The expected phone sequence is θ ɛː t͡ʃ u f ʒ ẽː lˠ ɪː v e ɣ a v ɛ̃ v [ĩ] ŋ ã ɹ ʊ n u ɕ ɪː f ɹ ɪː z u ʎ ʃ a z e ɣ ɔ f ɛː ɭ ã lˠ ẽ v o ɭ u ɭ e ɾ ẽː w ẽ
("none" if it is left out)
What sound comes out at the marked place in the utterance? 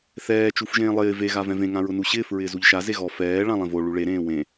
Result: ẽ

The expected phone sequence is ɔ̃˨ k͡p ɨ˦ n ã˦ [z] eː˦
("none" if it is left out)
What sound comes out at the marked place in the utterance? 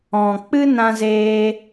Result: z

